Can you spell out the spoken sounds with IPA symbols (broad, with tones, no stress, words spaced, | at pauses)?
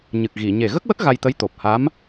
ɲɨ˨˩k̚ɣi˨˩˨ ɲe˨˩ɣə˦˥k̚wə˦˥k̚ ɣa˧jt̪ə˧˥j t̪o˨˩p̚ha˧˥m